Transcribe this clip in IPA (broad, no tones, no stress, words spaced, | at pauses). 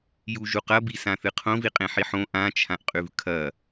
juʒuqɐbi sãθɨqʰõ viqʼẽħiħõ ʔãt͡ʃʰãʔqʼʉv kʰɐ